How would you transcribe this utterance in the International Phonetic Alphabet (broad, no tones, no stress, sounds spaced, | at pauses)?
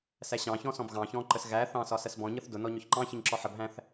s æ ɕ ɑ̃ ç ɔ̃ s ɔ̃ b ɣ ɑ̃ ç ɔ̃ ǃ ə s ɣ æ θ ɑ̃ s ɒ s ɜ s b ɔ̃ ɲ ʌ θ d ʊ n ɔ ɲ ʊ ç ǃ ɑ̃ ç ɪ ɲ ǁ ɔ ħ ə b ɦ æ̃ θ